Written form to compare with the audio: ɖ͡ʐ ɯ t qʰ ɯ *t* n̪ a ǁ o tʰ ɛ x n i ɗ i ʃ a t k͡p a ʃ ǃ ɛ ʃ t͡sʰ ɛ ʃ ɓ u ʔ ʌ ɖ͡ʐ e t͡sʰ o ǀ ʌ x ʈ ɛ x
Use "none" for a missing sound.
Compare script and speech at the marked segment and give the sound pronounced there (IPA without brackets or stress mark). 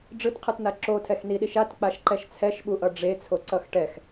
t